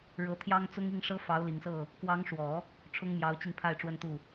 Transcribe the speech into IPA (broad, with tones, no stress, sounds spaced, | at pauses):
ɻ ɤ˧˥ t̪ʰ j ɑ˥ ŋ t͡s ʊ˥ ŋ i˥˩ ŋ ʂ ɤ˥ f ɑ˧˥ ʊ̯ l i˨˩ ŋ s ɤ˥˩ | k w ɑ˧˥ ŋ ʂ w ɔ˨˩˦ | ʈ͡ʂʰ ʊ˥ ŋ m j ɑ˧˥ ʊ̯ t͡ɕ i˧ ŋ pʰ a˥˩ ɪ̯ ʈ͡ʂ w ə˥ n t̪ u˥˩